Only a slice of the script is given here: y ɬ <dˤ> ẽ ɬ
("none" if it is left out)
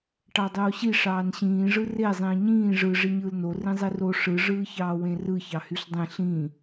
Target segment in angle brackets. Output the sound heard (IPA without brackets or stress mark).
dˤ